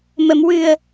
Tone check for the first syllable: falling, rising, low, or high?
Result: low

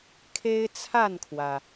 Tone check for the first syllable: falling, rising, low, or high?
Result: high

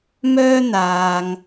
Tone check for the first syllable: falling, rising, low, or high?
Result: high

